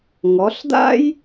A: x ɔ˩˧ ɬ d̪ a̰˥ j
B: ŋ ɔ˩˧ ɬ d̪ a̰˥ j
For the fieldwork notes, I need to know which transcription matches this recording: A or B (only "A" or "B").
B